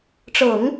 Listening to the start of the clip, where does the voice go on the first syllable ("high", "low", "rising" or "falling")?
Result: low